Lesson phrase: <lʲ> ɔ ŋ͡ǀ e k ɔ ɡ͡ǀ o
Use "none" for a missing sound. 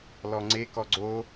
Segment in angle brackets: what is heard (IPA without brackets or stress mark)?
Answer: l